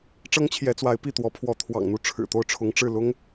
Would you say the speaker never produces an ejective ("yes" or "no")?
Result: yes